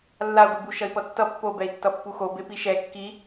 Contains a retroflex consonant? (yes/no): no